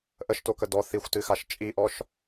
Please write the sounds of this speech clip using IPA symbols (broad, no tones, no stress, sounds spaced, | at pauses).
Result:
ʔ ə ʃ t o k ə d ɔ θ i xʷ t ɨ x a ʃ t͡ʃʼ i ʔ ɔ ʃ